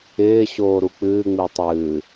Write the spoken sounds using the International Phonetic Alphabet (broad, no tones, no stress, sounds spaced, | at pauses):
ɪː ɕ oː ɾ u k͡p ɨː ŋ͡m i tˤ ɨː